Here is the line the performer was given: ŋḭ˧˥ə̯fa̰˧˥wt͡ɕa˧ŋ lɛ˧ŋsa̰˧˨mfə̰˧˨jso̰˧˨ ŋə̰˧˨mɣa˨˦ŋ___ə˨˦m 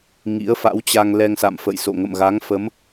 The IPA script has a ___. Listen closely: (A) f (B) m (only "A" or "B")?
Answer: A